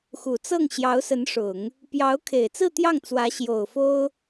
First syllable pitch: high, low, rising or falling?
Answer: low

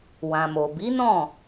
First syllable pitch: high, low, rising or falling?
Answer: low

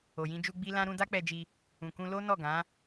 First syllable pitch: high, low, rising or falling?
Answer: low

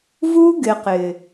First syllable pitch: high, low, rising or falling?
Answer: high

